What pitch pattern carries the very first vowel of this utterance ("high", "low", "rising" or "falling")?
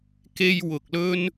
high